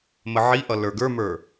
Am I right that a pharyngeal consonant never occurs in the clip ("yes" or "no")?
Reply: no